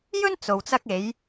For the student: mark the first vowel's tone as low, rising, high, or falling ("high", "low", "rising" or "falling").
high